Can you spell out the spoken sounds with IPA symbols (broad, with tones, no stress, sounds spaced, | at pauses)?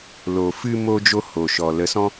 l o˨ f ɨ˧ m o˦ d͡ʒ o˦ h o˨ ʃ ɔ˨ l ə˨˦ s ɔ̃˦